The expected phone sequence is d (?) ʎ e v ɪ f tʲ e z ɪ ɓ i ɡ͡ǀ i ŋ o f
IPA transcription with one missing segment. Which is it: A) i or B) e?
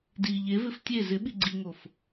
A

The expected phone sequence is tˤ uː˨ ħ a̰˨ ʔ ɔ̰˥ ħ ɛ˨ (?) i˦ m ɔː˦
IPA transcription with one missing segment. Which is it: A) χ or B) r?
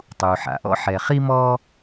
A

